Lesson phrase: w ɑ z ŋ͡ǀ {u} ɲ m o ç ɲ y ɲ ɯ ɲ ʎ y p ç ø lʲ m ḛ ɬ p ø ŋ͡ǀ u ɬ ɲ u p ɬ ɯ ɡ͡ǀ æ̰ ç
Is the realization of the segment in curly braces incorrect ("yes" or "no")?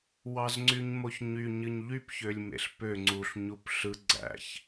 yes